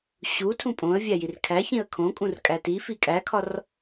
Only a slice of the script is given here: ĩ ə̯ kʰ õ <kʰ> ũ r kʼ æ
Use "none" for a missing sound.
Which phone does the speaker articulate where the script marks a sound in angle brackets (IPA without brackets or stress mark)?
kʼ